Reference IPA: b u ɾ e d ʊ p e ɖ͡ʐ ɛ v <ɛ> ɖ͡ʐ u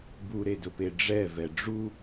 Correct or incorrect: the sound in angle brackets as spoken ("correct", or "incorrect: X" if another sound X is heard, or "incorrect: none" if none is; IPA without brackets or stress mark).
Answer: correct